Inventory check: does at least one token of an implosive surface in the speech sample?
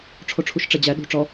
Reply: yes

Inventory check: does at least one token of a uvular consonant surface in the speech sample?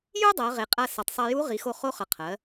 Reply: yes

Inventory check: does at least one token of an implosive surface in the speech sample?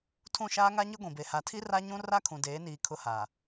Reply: no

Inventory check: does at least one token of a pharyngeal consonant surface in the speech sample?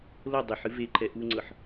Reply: yes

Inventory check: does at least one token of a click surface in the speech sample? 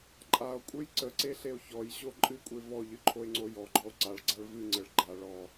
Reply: yes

